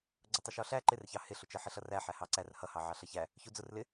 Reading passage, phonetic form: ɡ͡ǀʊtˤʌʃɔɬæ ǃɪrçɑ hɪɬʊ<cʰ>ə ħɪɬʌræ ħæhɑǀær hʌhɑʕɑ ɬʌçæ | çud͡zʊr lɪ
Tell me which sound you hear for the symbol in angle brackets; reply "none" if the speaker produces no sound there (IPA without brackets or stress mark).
t͡ʃ